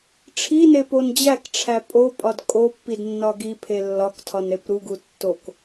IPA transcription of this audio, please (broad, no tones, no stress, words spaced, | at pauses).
ʈ͡ʂʰinepon d͡ʑækʈ͡ʂʰæ pʼopʼɒd kʼopːidnːɒ ɡipʰe lːɒktʰɒnɾep ɾuɡu tːok